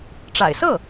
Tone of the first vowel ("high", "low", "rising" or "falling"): low